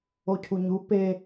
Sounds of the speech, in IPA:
ocʰuɲu pe

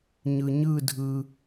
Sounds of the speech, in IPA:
ɲɯ˧ɲɯ˥˧dʱɯ˧

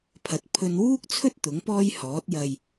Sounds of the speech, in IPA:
pʰɐ˨t̚ pʰɵ˧nwuː˥k̚t͡sʰɵ˥t̚ t̪ʊ˨˥ŋpɔː˥jhɔː˨˥t̚ jɐ˨j

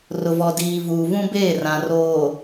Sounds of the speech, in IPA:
rʊ˨vɔ˨diː˨ vuː˨vũ˦beː˦˨ rã˨roː˨

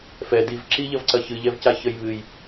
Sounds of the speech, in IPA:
fɛ div ǁiʎɐvǀɐ çɨʎɛvca çəj βɨj

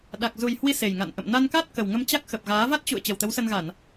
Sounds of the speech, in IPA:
ɗa˨˩k̚zu˨˩jhwi˧ se˨˩jŋa̰˧˨n ʔə̰˧˨mna˧n ka˦˥t̚ kə˨˩w ŋə˧m t͡ɕa˦˥k̚ xə˨˩p̚ɣaː˨˦ va˦˥t̚t͡ɕṵ˧˨ə̯ t͡ɕə˨˩wt̪ə˨˦wsə˧nɣa˧˩˨n

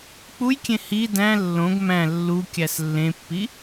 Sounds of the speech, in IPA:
k͡pujkʲẽ hi dæ̃ lːõɡ mæ̃ lːukʲæs lːẽpːi

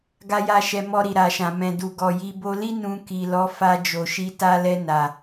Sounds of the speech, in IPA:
ɡa˧ja˧ ʃɛ˧mɔ˧ɾi˨ ɾa˨ʃã˨mɛ̃˨ du˨ɡɔ˨ji˧ bo˧li˦ nũ˧ki˨ lɔ˨˦ fa˧d͡ʒo˨ʃi˧ ta˧ lɛ˧na˨

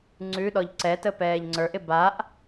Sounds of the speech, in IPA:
ŋ͡ǀʉɗɔʎ ǀɛtə pɛːʎŋ͡ǀə˞ʔɪ baʔ

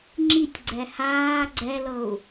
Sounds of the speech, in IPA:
ŋ͡ǁitʲɡ͡ǀɛ haː ɡ͡ǀɛlɤu̯

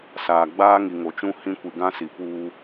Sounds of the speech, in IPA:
saː˨ ɡ͡baː˦ŋi˨ ŋo˨t͡ʃũ˦ hĩ˦ kʷi˨ɡã˦si˨ puː˦

